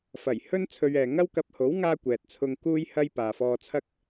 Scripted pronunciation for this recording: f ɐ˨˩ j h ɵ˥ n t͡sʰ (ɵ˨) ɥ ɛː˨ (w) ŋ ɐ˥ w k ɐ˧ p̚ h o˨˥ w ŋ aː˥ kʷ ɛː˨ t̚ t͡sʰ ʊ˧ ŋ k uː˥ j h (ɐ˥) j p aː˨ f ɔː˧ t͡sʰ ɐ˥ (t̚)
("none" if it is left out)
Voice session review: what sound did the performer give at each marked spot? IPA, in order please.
ɵ˧, none, ɐ˥, k̚

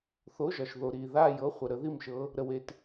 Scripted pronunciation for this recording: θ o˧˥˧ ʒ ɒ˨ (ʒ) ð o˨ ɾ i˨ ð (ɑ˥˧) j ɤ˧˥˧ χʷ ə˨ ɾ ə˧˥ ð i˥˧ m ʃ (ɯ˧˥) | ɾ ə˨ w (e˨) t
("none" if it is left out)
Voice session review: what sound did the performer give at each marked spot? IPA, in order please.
ʃ, a˥˧, ɤ˧˥, e˨

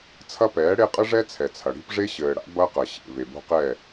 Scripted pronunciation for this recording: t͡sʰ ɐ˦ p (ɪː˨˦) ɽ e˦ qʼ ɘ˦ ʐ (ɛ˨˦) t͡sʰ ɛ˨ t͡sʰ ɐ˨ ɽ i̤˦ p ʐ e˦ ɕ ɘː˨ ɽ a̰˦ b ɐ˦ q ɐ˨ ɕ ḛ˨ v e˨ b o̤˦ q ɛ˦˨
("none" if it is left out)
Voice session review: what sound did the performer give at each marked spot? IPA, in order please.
ɛː˨˦, ɛ˦

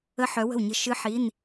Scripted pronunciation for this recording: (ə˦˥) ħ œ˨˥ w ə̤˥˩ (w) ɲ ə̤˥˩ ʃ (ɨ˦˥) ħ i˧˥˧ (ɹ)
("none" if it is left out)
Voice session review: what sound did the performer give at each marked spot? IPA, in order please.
ə˦˥, w, ɨ˦˥, n

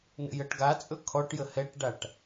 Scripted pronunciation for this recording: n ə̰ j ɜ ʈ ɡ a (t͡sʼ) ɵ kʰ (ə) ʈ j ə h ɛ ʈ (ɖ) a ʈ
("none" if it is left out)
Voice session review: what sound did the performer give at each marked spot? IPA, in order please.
t͡sʼ, ɔ, ɖ

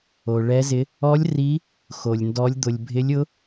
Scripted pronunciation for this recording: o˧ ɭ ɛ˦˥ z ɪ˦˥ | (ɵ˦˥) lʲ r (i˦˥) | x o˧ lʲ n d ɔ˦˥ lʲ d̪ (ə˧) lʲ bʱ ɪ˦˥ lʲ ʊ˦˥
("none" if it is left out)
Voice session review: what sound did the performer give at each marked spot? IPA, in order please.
ɔ˦˥, i˦˥, ʊ˧

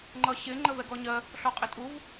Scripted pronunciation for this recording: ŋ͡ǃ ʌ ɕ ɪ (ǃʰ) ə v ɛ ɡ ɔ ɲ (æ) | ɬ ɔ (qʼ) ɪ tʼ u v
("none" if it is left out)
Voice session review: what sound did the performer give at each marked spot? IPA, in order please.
ŋ͡ǃ, ɜ, qʼ

